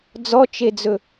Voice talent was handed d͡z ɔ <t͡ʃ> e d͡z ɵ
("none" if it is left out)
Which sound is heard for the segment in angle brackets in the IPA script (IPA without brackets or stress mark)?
t͡ʃ